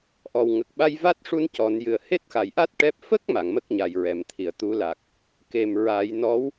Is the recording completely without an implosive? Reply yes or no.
no